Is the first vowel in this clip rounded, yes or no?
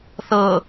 no